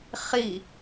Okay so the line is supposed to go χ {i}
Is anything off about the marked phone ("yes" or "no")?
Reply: no